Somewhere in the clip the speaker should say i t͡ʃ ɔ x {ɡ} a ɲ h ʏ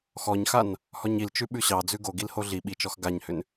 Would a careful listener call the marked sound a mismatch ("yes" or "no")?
no